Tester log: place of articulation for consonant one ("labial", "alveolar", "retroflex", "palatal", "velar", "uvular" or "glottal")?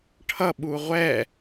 retroflex